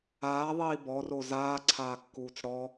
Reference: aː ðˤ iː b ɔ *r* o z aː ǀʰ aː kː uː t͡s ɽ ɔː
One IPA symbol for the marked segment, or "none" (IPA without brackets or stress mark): r